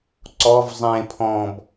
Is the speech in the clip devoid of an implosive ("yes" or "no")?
yes